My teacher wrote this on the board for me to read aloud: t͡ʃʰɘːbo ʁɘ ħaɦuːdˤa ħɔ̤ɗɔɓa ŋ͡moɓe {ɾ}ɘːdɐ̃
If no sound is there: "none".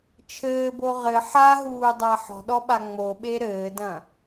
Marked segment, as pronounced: ɾ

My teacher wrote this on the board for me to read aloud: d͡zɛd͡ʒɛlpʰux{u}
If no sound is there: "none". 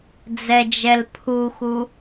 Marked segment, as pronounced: u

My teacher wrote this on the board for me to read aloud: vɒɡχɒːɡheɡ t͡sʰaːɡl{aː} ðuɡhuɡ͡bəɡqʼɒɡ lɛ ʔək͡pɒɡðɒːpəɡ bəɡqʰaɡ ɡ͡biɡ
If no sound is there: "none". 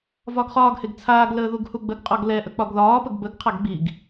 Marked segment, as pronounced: əː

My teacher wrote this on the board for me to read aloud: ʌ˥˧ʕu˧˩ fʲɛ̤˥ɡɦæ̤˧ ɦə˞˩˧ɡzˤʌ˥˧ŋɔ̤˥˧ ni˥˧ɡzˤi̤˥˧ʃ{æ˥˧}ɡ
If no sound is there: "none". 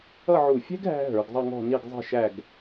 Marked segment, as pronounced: æ˥˧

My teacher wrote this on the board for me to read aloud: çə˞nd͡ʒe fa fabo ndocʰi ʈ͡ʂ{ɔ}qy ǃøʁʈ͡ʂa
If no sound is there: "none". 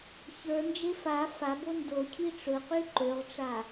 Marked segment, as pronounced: ɵ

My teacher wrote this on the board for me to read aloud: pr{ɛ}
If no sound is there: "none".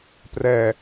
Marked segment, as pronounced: ɛ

